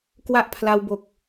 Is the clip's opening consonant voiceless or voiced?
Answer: voiceless